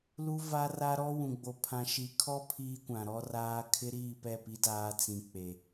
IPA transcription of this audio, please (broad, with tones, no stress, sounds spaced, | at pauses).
l u˦ v a˦ r a˦ ɾ ɔ˦ w ũ˨ ɡ͡b o˨ pʰ ã˨ ʃ i˨ kʰ ɔ˦ pʰ iː˦ kʷ ã˨ ɾ ɔ˦ r aː˦ kʰ ɪ˦ ɾ iː˦˨ p ɛ˦˨ p i˦ d aː˦ t͡s ĩ˨ k͡p e˨